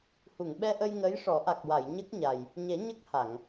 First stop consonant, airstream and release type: implosive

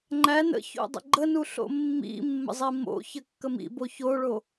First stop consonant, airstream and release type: click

